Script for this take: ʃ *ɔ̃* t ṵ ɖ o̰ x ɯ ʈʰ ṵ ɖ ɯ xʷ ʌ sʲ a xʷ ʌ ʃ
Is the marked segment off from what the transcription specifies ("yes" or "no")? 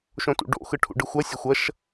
yes